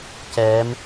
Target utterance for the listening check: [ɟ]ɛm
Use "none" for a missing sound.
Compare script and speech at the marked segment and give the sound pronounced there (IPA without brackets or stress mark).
c